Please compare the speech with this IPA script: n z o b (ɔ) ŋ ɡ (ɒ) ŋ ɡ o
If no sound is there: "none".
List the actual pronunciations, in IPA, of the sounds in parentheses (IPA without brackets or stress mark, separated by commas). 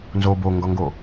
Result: o, ɒ